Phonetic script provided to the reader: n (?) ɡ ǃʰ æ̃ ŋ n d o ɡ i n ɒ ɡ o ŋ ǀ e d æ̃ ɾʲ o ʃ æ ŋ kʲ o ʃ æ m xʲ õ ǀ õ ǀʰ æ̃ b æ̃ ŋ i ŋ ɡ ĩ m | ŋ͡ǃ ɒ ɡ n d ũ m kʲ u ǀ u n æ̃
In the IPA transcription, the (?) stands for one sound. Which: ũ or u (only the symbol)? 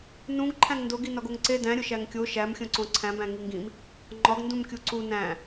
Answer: ũ